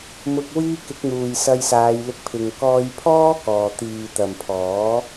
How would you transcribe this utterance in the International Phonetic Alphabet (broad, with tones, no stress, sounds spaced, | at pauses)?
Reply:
m ʊ˨ k̚ w iː˧ k ɪ˨˥ k̚ n̪ uː˨ j s ɐ˧ j s aː˨˧ j l ɪ˧ k̚ pʰ ɪ˨ ŋ k ɔː˧ j pʰ ɔː˥ k ɔː˨ t̪ iː˨ t̪ ɐ˨ m pʰ ɔː˨˥